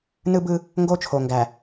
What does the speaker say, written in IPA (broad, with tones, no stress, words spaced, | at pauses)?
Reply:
nɯ˦bɯ˦ | ŋɡo˦t͡ʃʰo˨ŋɡæ˨